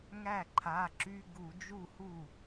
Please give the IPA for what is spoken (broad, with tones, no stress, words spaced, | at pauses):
ŋæ˥˩ǃʰa˩˧˩ǁy˧˥˧ ɡu˧˩˧d͡ʒu˥˩hu˥˩